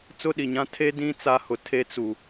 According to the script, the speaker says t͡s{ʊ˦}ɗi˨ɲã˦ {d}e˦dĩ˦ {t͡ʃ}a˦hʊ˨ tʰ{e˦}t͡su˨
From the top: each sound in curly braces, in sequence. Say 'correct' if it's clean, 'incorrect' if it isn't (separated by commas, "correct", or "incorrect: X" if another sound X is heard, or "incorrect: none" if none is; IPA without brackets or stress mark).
correct, incorrect: tʰ, incorrect: t͡s, correct